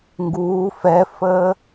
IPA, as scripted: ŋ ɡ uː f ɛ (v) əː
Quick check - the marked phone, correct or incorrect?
incorrect